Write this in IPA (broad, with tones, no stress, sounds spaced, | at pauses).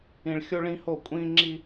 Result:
ĩ˨ ɭ xʲ o˦ ɭ ĩ˦ h o˦˨ kʷʼ ĩ˦ ŋ͡ǁ i˦